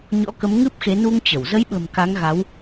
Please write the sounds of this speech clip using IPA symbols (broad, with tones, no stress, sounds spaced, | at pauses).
ɲ ɔ̰˧˥ k ə˨˦ m ŋ ɨ˦˥ p̚ x e˨˦ n u˧ ŋ t͡ɕ ə˧˩ w z ə˨˦ j ɓ ə̤˨˩ m k a˨˦ ŋ ɣ a˨˦ w